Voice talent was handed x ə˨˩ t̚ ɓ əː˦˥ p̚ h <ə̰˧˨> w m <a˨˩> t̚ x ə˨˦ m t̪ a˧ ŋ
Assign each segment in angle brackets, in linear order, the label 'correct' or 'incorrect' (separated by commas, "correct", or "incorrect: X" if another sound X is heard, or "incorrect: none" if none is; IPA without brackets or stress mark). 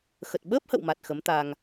correct, correct